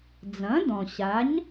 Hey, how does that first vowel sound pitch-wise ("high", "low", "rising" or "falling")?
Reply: rising